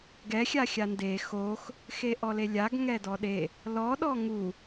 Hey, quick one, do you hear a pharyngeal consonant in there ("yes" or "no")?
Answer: no